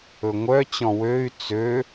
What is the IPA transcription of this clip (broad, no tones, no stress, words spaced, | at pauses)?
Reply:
ɵŋʷœt͡ɕɔ̃ wøy̯ t͡sø